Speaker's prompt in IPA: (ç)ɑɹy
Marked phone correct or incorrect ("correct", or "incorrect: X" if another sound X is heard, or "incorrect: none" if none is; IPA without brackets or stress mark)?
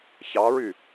correct